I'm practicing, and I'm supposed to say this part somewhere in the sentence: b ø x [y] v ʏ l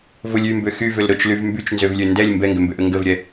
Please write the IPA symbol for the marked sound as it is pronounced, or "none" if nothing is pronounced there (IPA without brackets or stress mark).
y